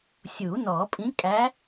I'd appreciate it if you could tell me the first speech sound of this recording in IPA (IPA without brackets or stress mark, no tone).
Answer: sʲ